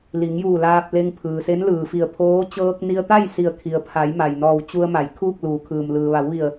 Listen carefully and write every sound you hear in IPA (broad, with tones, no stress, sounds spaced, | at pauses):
l i˩˧ ŋ j uː˧˩ l aː˧ p̚ l e˧ ŋ pʰ ɯː˩ s e˧˥ n l ɯː˩ f i˧˩ ə̯ pʰ oː˧˥ t͡ɕ ɤː˧ k̚ n i˧ ə̯ t̪ a˥˨ j s i˧˩ ə̯ kʰ i˩ ə̯ pʰ a˩˧ j m a˩ j n ɔː˧˩ w t͡ɕ u˧ ə̯ m a˩ j kʰ uː˥˨ k̚ l uː˩˧ kʰ ɯː˩ m l ɯː˩ ʋ a˩˧ w ʋ i˧˩ ə̯